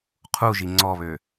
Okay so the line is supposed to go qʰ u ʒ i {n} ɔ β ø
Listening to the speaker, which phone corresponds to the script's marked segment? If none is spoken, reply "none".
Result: ŋ͡ǀ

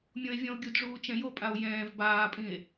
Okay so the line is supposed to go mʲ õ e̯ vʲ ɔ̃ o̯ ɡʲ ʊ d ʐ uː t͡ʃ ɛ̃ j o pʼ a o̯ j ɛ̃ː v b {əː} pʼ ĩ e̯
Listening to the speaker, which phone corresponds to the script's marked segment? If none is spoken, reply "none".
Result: aː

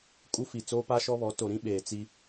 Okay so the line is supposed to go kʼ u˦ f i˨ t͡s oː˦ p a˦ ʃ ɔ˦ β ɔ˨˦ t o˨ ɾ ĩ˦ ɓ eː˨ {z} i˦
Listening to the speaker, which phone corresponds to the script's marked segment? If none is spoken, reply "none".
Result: t͡s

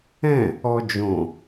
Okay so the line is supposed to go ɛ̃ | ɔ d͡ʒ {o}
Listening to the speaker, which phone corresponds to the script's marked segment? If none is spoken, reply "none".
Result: õ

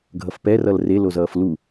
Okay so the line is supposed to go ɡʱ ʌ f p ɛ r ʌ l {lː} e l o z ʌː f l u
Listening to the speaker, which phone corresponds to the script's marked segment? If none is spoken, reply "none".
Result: r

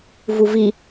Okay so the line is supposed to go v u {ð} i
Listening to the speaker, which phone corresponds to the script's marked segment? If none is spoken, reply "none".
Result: v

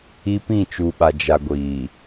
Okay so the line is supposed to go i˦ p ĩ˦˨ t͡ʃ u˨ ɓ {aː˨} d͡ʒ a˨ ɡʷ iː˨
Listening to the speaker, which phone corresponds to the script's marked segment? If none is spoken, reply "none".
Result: a˨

